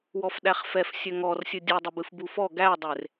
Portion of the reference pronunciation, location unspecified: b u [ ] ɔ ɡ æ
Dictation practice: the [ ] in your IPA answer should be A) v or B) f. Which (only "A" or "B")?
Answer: B